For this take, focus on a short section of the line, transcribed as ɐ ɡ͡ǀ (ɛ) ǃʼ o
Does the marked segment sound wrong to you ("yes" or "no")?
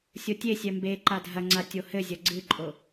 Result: yes